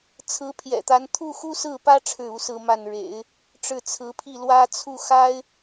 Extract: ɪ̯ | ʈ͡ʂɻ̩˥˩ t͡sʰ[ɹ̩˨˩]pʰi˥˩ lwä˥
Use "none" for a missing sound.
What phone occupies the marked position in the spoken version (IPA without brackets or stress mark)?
ɹ̩˧˥